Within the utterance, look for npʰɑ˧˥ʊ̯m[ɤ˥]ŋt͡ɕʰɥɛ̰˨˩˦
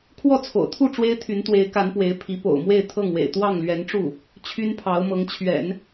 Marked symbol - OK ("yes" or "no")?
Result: no